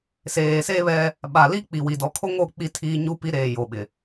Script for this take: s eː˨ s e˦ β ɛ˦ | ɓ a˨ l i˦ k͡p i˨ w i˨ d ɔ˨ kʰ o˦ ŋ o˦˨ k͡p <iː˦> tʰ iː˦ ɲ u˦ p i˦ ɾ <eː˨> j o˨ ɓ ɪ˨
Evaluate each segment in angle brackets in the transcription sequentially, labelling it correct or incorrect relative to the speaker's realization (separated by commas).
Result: incorrect, correct